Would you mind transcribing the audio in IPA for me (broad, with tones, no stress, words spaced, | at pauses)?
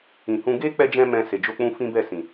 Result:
ĩ˨hũ˧ ɡe˦k͡pɛ˧d͡ʒɛ̃˧ mɛ̃˧ se˨d͡ʒo˧k͡pũ˧ fĩ˦bɛ˦˨sĩ˨